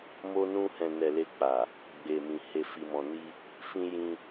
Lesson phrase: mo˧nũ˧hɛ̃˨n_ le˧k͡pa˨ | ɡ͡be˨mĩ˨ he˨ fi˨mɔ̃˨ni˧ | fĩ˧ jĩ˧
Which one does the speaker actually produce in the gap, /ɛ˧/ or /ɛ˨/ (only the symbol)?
ɛ˨